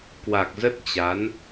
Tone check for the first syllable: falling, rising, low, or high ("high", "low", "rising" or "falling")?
low